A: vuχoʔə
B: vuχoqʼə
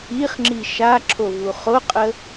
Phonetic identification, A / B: B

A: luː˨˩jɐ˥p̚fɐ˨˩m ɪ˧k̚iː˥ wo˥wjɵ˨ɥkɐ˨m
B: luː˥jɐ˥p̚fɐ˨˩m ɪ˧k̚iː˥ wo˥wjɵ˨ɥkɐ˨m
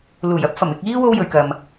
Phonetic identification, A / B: A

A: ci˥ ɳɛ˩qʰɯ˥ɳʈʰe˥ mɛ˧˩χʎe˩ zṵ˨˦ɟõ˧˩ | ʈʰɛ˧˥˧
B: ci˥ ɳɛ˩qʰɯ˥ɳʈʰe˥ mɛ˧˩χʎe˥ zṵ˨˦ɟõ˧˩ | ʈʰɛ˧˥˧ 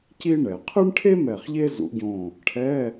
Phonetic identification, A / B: B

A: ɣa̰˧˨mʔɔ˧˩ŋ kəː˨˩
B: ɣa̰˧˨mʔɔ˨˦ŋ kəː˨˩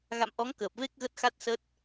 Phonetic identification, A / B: B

